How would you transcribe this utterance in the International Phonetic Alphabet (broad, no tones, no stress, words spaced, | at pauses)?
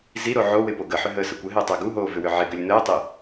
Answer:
ziɾo ʕowɪ poɡəħʏ ɦəːsəkʷəɦɪː tˤəːɡuɦoː vʏwʏʕɪɡʏlʲ nəːtˤɪ